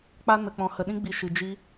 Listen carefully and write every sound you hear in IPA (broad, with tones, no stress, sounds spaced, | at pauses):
k͡p a˦ n ə˧ k͡p ɔ̃˧ h ə˧ ɗ ĩ˦ ɡ͡b i˧ ʃ ɨ˧ d͡ʒ i˦